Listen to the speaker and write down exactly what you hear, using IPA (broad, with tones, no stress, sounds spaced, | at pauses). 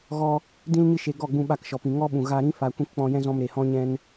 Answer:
ɣ ɔ˧ | d ĩ˧ l ɲ ɨ˧ ʃ e˨ ɡ ɔ˦˨ ɡ͡b ũ˧ ɓ a˦˨ k ʃ ɔ˨ p ĩ˨ ŋ ɔ˦ ɓ ũ˨ ɣ a˧ ɾ ĩ˦ f a˨ kʷ ĩ˧ k k͡p ɔ̃˧ j ɛ̃˦ z ɔ̃˧ m ɾ e˨ h ɔ̃˦ ɲ ɛ̃˦ n